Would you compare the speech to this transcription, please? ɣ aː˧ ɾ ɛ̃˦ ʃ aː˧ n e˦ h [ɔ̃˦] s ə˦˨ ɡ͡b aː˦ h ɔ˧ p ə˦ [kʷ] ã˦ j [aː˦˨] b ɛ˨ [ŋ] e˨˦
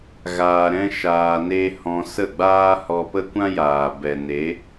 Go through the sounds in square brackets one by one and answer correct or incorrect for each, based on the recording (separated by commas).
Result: incorrect, correct, incorrect, incorrect